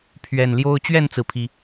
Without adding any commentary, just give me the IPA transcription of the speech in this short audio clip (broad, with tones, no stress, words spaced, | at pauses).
pʰɥɛ˨˩nljo˦ʊ̯ t͡ɕɥɛ˥˨nt͡sɹ̩˩pʰi˩